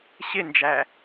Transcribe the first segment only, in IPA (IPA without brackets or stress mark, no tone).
ɕ